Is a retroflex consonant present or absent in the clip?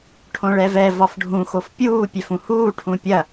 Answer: present